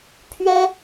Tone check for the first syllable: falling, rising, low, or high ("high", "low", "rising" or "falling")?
high